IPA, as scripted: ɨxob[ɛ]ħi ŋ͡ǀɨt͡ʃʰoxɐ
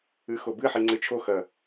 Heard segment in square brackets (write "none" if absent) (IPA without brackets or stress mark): ɨ